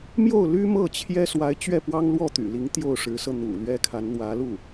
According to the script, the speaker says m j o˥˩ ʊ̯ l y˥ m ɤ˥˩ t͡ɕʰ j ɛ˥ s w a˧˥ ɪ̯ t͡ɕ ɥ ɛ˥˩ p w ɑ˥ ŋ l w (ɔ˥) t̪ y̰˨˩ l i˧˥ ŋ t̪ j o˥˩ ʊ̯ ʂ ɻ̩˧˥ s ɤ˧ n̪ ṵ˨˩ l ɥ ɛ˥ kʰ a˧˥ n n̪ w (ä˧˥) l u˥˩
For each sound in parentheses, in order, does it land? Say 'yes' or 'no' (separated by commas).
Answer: no, yes